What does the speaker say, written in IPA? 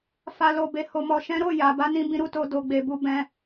f a˨ l o˨ b e˨ h o˨ m ɔ˨ ʃ ɛ̃˨˦ ɾ o˦˨ j a˨ b a˧ n ĩ˧ b ĩ˧ ɾ u˦ t o˧ d o˧ ɡ͡b e˧ b u˦ b ɛ̃˦

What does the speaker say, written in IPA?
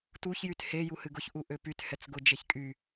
t u ç j y t h e j u h ɨ ɡ ʊ ç ʔ u ʔ ø p y t h ɛ t͡s ɡ ʊ d͡ʒ e ç kʼ y

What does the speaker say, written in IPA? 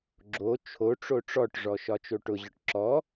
ɡ͡ǁ o t͡ʃʰ o ʈ͡ʂ o ʈ͡ʂ ɔ ʈ ʐ ɔ ʃ ɒ t͡ʃ o ʈ ʊ ʑ ɒ ʈ ǁ ɔ

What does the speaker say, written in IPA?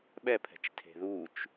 ɓ ɛ pʰ ɛ̤ t͡ʃ tʰ e̤ ð u t͡ʃ

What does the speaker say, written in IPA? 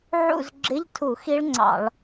ʕ ṵ˦˨ z ɡ͡ǁ ɪ˧˥˧ ʎ tʰ u˧˩˧ x i˦˥ ɭ ŋ͡ǀ ɑ̰˧˩˧ ɭ

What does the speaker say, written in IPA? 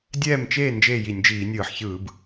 dʲ ɛː˥˨ m t͡ʃ eː˥˨ n d͡ʒ eː˥˨ j i˧˩˧ nʲ d͡ʒ iː˧˩˧ nʲ ɯː˧˩˧ ħ ç ɯː˧˩˧ b

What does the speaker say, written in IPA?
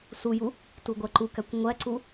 s u j u | t u ɡʷ æ ǃ u k æ kʷ ŋʷ æ ǀ u

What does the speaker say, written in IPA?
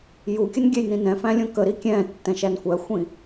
j u kʲ ə n ɡʲ ɛ j n ĩ n ɛ̃ f æ̃ lʲ ũ k ə ɾ i kʲ ɛ̃ː tː ɛ̃ ʃ æ n kʷ æ xʷ ĩ

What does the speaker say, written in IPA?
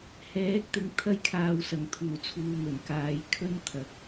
h ɛː˨˥ k̚ t̪ ɪ˨˥ ŋ t̪ʰ ɐ˥ j kʰ aː˧ w s ɐ˨ ŋ t̪ʰ uː˨˩ t͡sʰ uː˨ n̪ ɵ˨˩ n k aː˨˧ j kʰ ɵ˥ n t̪ʰ ɐ˨ k̚

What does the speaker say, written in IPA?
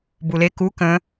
b u l e k u k ə̃

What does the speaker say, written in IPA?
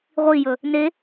ʁʷ i j ɵ | n e

